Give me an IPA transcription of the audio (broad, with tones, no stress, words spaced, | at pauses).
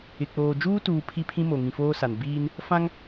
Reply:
ɪ˨k͡poː˨ d͡ʒuː˦tuː˨ pʰi˦pʰĩ˦ mo˨ŋĩ˨foː˦sa˨n biː˦n | fã˦ŋ